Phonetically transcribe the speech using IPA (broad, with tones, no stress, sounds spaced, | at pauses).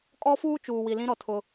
kʼ ɔ˦ f uː˦ t͡ʃ uː˨ w i˨ l ĩ˦ ɾ ɔ˨ tʰ ʊ˦